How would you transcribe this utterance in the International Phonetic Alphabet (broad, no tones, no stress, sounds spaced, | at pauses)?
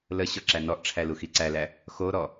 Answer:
l ə ɕ ɔ ǁ æ n ɔ ʔ ʈ͡ʂʰ æ l u x i ǀ æ l æ | x o ɾ ɔ